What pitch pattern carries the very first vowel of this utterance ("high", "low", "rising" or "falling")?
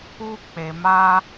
high